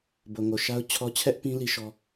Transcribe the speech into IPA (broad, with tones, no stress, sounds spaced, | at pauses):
b o˨ ŋ o˨ ʃ a˦ ʊ̯ t͡ɕʰ ɔ˦ t͡ɕʰ ɛ˦ ʔ p ĩ˦ l i˦ ʃ ɔ˦